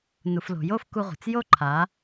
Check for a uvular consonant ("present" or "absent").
present